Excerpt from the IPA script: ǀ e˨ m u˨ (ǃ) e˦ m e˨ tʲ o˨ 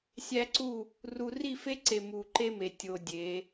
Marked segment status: correct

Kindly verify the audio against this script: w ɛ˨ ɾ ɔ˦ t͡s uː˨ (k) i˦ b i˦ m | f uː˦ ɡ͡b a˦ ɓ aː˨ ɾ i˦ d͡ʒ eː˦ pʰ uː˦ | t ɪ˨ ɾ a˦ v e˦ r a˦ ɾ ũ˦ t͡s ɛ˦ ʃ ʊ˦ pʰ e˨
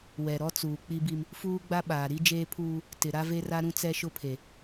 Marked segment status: incorrect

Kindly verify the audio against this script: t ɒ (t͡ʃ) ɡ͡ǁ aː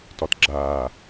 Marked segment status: incorrect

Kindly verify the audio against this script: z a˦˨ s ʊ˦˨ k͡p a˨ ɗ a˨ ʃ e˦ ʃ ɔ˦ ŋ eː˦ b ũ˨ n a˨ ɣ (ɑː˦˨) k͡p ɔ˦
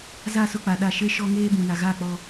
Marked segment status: incorrect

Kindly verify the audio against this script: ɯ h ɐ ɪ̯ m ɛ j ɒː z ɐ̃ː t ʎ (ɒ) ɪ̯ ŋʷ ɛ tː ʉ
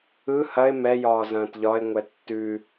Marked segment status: correct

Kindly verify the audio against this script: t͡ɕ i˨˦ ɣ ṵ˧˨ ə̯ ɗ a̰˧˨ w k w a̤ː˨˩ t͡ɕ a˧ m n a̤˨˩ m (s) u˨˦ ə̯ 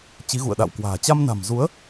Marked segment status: incorrect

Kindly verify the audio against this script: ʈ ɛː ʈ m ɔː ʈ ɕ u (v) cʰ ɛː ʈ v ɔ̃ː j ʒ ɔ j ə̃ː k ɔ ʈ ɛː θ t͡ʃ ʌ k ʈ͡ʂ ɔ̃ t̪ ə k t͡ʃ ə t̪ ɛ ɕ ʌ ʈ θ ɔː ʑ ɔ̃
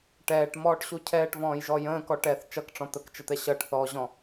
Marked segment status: incorrect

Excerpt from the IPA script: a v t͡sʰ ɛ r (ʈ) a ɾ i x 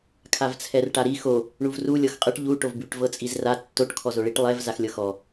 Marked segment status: correct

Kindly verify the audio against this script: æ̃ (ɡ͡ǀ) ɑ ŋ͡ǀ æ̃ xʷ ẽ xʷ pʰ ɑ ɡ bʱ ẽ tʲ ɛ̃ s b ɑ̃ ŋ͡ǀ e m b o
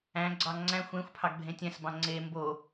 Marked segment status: correct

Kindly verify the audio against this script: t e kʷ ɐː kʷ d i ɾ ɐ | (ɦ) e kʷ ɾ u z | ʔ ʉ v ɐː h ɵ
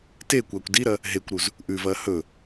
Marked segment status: correct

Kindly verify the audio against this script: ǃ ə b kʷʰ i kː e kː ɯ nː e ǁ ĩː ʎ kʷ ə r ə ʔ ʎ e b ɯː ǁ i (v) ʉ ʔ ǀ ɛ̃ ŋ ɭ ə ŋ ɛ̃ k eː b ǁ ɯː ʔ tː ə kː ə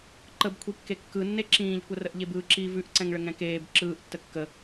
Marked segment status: correct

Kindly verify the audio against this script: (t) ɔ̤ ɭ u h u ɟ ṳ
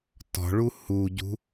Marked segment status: correct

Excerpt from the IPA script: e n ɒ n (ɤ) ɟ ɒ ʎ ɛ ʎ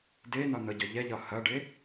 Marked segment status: correct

